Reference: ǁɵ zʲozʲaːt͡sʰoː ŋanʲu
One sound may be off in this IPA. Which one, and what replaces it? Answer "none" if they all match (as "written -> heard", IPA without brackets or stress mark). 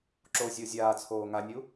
ɵ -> o